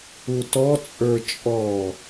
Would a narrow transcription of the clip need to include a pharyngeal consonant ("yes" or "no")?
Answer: no